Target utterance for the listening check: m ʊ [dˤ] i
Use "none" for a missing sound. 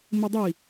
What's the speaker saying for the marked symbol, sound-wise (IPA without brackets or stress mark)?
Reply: dˤ